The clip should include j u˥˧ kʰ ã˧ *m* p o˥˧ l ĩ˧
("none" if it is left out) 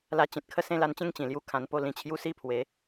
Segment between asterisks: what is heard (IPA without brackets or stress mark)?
n